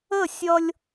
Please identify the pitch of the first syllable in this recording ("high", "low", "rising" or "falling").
falling